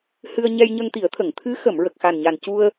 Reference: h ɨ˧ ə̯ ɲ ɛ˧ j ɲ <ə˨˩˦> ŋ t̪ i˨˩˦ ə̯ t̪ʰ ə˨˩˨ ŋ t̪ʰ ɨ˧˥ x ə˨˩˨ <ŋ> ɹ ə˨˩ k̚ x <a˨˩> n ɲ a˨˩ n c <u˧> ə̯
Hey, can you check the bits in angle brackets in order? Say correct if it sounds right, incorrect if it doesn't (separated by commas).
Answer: incorrect, incorrect, correct, correct